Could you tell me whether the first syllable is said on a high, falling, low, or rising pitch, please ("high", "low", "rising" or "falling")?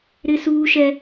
high